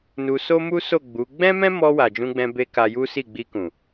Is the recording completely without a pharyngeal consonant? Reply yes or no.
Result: yes